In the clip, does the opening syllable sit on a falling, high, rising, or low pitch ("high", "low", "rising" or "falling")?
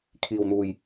low